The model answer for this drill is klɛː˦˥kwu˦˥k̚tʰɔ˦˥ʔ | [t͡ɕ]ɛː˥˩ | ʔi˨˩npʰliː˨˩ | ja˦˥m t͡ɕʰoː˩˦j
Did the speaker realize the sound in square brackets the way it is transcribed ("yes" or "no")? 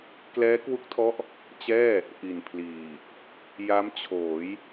yes